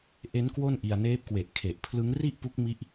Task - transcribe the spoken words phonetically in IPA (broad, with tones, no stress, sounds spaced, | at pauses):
ʔ e˦˥ n k w o˥˩ n ʔ i˧ a̯ n eː˦˥ p̚ k w e˨˩ ʔ kʰ e˨˩ ʔ pʰ l ɯ˦˥ ŋ r i˥˩ ʔ p u˦˥ k̚ m i˦˥ ʔ